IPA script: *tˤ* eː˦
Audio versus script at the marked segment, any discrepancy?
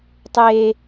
no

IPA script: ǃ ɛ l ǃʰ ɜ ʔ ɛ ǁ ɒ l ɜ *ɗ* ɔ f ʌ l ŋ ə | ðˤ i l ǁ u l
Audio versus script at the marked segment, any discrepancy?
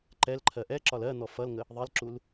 yes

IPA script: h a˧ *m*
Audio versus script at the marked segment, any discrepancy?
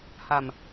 no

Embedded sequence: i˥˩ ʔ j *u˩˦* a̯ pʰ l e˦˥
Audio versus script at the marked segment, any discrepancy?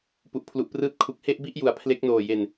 no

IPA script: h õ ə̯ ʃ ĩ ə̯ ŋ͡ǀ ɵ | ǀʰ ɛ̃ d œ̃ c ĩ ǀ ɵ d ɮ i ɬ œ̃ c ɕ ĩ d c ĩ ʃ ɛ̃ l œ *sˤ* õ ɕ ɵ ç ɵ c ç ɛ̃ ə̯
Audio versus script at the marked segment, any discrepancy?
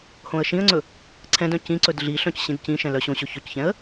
yes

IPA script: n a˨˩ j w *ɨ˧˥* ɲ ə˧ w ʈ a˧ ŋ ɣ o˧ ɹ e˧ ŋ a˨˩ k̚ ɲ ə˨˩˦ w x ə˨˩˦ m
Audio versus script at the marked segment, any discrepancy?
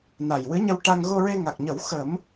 no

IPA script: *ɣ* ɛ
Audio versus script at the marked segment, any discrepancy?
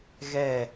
no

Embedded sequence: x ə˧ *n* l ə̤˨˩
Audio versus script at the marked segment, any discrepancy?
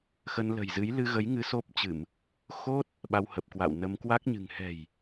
no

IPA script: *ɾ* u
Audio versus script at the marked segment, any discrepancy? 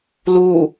yes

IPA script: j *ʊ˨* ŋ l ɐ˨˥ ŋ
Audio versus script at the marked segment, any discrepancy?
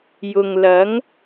no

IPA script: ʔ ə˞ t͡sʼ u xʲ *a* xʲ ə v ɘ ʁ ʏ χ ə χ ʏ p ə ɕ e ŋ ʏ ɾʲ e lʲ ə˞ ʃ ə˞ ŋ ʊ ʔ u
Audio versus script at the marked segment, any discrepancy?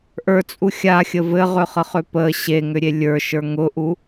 no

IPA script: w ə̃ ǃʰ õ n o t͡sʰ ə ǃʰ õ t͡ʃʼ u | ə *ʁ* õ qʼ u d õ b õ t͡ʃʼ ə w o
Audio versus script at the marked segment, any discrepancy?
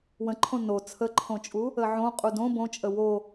yes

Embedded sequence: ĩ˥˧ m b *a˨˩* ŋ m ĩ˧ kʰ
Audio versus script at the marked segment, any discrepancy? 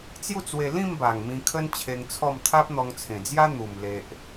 no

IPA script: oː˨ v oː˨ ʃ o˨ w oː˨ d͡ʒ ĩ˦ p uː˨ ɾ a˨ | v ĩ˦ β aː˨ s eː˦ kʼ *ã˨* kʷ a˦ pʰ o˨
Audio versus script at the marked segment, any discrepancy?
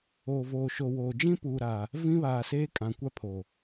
no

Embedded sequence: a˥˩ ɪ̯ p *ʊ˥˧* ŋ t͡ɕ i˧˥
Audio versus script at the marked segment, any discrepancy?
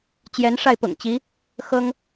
yes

